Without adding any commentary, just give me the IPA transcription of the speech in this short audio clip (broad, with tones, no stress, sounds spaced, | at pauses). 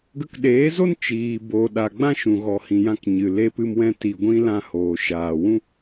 ɡ ə˧ k ɗ eː˨˦ z o˦ n t͡ʃ iː˨ b o˨ ɗ a˨ ɡ͡b ã˦ ʃ ũ˨ ɣ ɔ˨ h ĩ˨ j ã˧ k ɲ ɨ˨ l e˧ p ɨ˧ m w ɛ̃˧ t i˨ ɡʷ ĩ˧ l ã˧ h oː˨ ʃ aː˨ w ũ˦